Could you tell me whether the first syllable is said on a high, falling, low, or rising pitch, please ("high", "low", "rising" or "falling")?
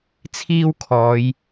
high